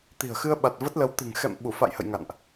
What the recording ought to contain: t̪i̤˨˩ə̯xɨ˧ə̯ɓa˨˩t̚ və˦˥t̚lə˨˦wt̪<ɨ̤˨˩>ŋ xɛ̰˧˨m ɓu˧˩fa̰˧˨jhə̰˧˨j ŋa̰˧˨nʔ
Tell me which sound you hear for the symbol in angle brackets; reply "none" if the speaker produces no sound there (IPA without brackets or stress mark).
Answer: ɨ̤˨˩